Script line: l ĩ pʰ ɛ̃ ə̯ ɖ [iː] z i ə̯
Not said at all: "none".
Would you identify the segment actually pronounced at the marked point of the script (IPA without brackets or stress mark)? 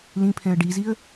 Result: i